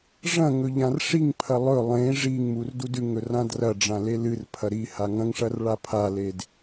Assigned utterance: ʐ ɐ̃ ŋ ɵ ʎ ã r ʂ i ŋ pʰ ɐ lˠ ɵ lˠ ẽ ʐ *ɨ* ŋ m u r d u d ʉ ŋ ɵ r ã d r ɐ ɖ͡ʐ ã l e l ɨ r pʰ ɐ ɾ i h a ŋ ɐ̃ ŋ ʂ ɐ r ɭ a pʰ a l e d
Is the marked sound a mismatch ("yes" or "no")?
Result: yes